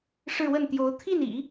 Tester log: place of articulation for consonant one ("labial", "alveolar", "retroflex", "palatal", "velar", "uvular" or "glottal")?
retroflex